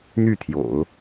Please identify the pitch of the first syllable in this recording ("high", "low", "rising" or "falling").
falling